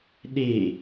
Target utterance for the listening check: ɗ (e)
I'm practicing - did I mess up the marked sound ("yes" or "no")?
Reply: no